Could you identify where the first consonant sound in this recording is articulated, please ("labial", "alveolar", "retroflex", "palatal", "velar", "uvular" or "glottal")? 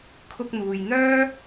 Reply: velar